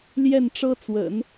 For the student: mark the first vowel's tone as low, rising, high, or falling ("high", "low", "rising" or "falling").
falling